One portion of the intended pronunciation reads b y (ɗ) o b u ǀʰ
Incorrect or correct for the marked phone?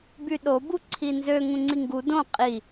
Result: correct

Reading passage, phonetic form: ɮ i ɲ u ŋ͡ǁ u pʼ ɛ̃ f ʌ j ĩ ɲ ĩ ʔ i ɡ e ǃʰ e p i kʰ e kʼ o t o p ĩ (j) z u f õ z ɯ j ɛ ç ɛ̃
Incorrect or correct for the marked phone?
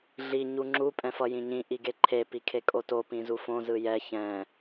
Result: incorrect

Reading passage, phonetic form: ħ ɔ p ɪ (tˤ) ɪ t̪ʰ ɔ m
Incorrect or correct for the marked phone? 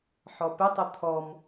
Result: correct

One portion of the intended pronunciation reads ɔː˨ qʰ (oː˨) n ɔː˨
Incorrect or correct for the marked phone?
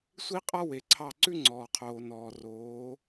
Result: correct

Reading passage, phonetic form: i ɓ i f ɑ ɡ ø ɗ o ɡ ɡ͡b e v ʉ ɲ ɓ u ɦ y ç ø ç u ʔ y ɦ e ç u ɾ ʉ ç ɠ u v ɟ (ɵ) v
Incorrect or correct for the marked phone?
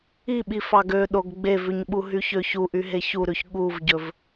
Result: correct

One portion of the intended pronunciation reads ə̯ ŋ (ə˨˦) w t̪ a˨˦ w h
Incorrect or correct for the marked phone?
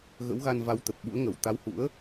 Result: incorrect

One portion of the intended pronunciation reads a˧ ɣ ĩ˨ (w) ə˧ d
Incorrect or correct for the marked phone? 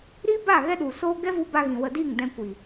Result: correct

